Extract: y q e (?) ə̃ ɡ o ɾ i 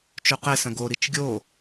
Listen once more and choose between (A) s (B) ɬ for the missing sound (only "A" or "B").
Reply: A